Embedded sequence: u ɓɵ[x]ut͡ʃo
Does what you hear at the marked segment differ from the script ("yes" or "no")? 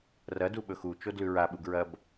no